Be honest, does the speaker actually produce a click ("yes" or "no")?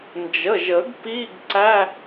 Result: yes